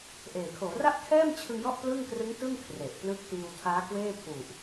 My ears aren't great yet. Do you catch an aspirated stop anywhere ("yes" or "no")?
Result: yes